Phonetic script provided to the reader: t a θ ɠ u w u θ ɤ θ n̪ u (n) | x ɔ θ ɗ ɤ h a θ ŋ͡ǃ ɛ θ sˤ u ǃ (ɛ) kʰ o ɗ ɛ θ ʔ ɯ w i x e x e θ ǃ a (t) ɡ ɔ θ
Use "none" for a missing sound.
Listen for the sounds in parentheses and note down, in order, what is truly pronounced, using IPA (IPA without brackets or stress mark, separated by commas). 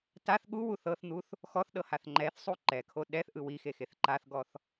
θ, ɛ, θ